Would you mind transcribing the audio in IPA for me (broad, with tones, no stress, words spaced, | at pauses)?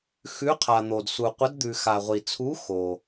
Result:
xʉ˧˥qʰa˨ n̪o˨d su˨qʷə˧˥d d̪ʉ˨xa˨ʁʷi˨t͡sʰu˧˥ xo˨